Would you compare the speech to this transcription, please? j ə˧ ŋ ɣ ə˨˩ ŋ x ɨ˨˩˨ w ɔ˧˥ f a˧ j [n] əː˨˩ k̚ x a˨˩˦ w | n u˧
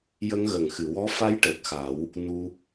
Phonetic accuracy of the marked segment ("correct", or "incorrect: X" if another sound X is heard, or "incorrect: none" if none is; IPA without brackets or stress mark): incorrect: ʈ